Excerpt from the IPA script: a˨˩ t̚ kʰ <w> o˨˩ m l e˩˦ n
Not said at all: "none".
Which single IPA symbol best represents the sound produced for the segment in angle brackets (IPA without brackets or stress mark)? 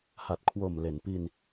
w